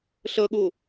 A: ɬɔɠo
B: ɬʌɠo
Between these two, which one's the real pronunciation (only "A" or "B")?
B